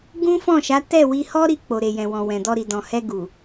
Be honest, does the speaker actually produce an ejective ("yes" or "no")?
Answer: no